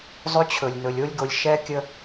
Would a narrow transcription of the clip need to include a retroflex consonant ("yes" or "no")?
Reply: no